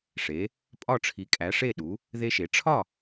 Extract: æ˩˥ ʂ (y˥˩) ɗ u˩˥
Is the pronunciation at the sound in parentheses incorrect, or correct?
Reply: incorrect: e˥˩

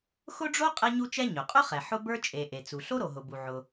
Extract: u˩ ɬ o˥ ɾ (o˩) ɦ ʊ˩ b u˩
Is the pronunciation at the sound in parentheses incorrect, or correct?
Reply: correct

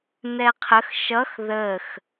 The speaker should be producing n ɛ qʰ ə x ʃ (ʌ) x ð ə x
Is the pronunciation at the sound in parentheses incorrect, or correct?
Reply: correct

